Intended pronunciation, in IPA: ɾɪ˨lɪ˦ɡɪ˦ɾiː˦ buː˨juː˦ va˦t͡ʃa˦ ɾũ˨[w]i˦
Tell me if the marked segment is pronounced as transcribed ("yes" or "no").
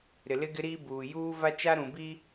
no